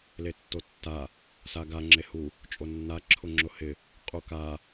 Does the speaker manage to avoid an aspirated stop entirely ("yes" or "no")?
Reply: no